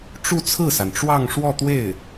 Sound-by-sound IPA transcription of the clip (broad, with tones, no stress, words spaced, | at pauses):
ʈ͡ʂu˥˧t͡sʰɹ̩˥˩sa˩nʈ͡ʂwɑ˥˧ŋ ʂwɔ˥˧t̪we˥˩ɪ̯